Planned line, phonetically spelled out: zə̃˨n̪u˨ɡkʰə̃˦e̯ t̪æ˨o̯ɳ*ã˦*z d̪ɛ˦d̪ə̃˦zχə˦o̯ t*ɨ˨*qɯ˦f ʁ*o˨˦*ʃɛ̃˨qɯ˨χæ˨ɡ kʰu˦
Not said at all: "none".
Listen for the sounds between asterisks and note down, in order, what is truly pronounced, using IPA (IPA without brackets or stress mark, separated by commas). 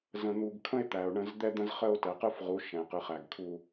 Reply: ə̃˦, ɛ˨, u˨˦